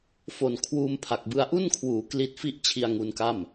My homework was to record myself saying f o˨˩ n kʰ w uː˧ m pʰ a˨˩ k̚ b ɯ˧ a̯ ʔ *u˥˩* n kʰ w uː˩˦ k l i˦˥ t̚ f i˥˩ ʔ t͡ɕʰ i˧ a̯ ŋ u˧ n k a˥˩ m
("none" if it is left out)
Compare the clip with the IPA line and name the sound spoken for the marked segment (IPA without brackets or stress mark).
u˥˩